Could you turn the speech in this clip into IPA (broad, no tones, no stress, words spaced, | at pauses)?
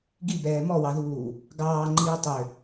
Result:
ɡibɛː mɔwɑðuː | ɡɑːŋ͡ǃiː tˤø